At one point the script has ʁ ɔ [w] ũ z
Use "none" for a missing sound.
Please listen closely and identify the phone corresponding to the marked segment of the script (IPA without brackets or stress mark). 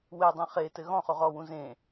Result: w